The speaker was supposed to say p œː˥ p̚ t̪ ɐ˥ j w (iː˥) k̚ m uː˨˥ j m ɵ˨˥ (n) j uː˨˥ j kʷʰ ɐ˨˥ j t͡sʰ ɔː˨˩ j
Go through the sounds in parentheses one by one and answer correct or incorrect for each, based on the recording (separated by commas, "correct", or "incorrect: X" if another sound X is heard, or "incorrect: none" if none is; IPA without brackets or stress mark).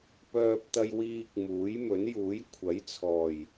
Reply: correct, correct